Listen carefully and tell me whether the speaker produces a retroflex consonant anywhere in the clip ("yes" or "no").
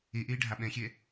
yes